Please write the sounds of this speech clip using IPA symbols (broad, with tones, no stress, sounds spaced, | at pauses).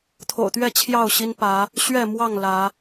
t̪ʰ o̰˨˩ ʊ̯ t̪ ɥ ɛ˥˨ t͡ɕʰ j ɑ˥˨ ʊ̯ ɕ i˦ n p ä˨˦ | ɕ ɥ ɛ˥˨ m w ɑ˥˨ ŋ l ä˨˦